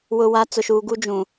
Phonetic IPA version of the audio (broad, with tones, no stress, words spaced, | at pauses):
wʊ˨wa˨˦ t͡sʊ˨ʃuː˨ɡu˦ d͡ʒũ˨